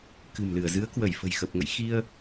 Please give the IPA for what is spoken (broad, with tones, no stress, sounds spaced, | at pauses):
k ɨ̤˨˩ m l ɨ˧˩ ə̯ z ɨ˨˦ ə̯ k w ə˧˩ j f ə̤˨˩ j x ə˨˩ p̚ ŋ ə̰˧˨ j x i˧ ə̯